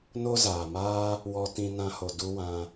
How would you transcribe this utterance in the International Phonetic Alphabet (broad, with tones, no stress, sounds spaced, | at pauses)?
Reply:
n o˦ z aː˨ m aː˦ | w ɔ˦ t ĩ˦ n ã˧ h o˨ d u˦ w ã˧